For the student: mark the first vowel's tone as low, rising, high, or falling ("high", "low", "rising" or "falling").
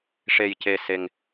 low